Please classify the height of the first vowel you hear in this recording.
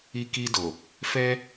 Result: high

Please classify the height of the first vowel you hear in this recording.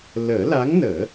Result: mid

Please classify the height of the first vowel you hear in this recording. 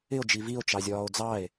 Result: high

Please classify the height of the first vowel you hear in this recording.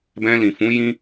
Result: mid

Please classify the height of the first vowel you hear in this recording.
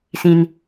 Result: high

